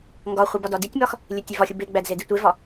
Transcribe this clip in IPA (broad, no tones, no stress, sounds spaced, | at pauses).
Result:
ŋ ɡ ɒ χʷ i b ɒ d ɒ d i tʲ m ɒ x | lʲ e tʲ e v ɒ xʲ u b e ɡ͡b æ d z e d i tʷ e v ɒ